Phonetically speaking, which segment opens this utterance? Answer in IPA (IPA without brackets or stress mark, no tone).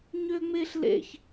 ɲ